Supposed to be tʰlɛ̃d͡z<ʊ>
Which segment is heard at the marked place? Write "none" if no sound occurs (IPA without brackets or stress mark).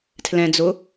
ʊ